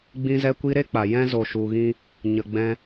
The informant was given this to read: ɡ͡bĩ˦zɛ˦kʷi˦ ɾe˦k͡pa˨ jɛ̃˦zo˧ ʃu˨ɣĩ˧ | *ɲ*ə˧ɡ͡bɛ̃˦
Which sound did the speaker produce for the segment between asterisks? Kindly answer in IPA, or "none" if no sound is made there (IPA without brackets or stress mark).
ɲ